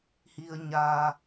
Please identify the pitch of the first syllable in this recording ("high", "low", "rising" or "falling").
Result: low